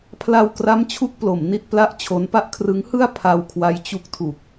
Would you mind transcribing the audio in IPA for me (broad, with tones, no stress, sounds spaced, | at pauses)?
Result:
pʰ l a˧ w k r a˦˥ m t͡ɕʰ u˥˩ k̚ p l o˩˦ m n i˥˩ t̚ p l a˥˩ ʔ t͡ɕʰ o˦˥ n p a˥˩ ʔ kʰ r ɯ˦˥ ŋ h ɯ˥˩ a̯ pʰ a˧ w kʰ w a˦˥ j t͡ɕ u˦˥ k̚ tʰ u˨˩ k̚